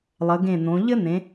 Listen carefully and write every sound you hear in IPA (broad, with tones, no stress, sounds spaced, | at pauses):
lˠ ə˩˧ ɡ ẽ˧˩ n̪ õ˩˧ ʎ ɘ˥ n̪ ẽ˩˧